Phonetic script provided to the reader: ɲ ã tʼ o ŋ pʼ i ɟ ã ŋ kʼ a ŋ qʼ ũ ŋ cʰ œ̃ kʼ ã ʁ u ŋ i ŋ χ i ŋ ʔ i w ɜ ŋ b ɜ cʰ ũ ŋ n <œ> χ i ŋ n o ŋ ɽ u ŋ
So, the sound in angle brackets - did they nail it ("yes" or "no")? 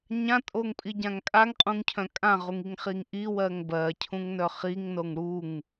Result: yes